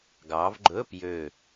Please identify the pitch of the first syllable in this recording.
rising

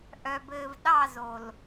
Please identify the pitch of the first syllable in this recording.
low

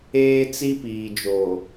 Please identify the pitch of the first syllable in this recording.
high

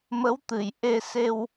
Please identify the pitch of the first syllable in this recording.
rising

